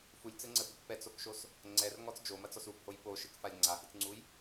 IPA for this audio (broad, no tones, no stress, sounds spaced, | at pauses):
f u lʲ t͡s ɘ ŋ͡ǀ ɘ f ɨ k p ɛ t͡s o k ʃ o s | ŋ͡ǀ ɛ r ŋ ɔ t͡s d͡ʒ o m ɐ t͡s ɔ s u b h o j p o ʃ ɨ k f a lʲ ŋ͡ǀ a h i t͡s ŋ͡ǀ u j